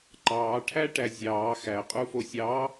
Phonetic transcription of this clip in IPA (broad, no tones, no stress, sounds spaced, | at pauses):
ǃ ɑː ʈʰ æ ʈ æ zʲ ɑː x æ qʼ u f o sʲ ɑː